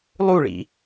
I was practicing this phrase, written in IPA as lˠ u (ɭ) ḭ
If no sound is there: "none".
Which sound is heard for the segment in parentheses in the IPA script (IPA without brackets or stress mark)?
ɭ